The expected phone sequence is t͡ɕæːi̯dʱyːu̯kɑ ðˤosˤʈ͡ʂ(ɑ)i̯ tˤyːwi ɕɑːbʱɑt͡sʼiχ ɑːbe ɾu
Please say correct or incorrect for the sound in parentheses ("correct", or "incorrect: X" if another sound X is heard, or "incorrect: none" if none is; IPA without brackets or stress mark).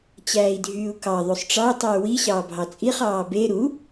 correct